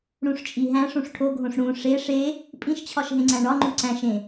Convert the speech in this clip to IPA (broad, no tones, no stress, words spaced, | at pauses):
ɽũʂt͡ʃʼiɦæ̃ʂ ũʂʈʰoɡʱõʂ ɽũ ʂe ʂe | pʼĩʃt͡ɕʰɒʃɦẽŋ͡ǀæ̃ ɳɒŋ͡ǃu ǀæ̃ʃẽ